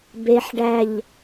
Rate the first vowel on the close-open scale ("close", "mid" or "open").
mid